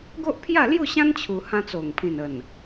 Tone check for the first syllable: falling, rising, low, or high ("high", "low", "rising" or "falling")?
high